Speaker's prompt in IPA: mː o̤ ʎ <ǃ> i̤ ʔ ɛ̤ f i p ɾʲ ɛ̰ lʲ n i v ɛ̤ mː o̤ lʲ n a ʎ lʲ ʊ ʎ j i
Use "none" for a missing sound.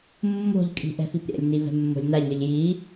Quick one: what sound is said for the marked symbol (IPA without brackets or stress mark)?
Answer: kʼ